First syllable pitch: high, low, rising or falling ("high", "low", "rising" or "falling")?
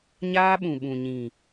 high